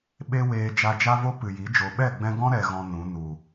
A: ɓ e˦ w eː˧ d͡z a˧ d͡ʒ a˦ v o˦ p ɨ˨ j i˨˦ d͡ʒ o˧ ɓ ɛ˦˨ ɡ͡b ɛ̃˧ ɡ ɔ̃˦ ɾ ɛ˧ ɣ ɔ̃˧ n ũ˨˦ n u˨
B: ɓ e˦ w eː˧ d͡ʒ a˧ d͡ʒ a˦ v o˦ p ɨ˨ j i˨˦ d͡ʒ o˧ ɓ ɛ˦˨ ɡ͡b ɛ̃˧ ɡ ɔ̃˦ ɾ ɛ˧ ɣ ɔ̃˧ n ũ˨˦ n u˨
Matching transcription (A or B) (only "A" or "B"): B